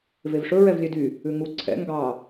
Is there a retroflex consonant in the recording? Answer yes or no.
yes